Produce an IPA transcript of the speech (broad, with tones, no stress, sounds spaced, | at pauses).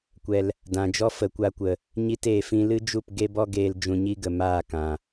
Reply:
kʷ ɛ˨ l | d ã˨ d͡ʒ ɔ˦ f ə˨ kʷ a˧ kʷ ə˨ | ɲ i˧ t eː˨ f ĩ˧ l ɨ˦ d͡ʒ u˦˨ p ɡ e˦ b ɔ˦ ɡ eː˧ l d͡ʒ ũ˧ ɲ i˦ ɡ ə˨ m aː˦˨ k ã˨